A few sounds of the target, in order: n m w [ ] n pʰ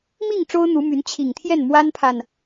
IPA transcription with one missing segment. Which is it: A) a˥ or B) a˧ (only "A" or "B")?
A